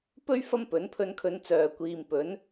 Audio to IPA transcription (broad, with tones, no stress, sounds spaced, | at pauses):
p ɵ˥ ɥ f ɐ˥ m p ɵ˨˥ n pʰ ɵ˧ n kʰ ɵ˨˧ n t͡s œː˨ kʷ iː˨ m p ɵ˨˥ n